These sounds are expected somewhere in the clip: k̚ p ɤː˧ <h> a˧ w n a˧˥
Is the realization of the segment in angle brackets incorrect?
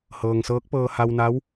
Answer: no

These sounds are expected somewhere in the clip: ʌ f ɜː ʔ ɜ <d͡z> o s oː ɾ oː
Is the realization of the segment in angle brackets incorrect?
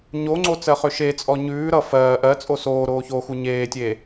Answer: yes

